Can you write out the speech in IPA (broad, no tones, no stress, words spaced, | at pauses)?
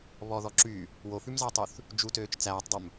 βɔðɔ ǁy | wofʉmzɑtˤʉθ | d͡ʒutøːt͡ʃ t͡sæːtˤdˤɵm